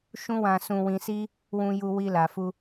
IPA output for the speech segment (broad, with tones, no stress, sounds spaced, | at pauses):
ʃ ũ˦ w ã˧ s ũ˧ w ĩ˧ s i˦ | w ũ˧ j u˧ w i˧ l a˨ f u˧